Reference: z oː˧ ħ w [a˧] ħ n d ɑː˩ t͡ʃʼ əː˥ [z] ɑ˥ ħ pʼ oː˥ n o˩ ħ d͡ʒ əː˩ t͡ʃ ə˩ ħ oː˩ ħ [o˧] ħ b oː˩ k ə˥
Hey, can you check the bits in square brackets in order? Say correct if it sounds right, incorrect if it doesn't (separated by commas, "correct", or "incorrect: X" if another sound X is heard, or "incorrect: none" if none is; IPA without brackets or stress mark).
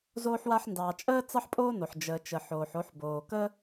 correct, incorrect: t͡s, correct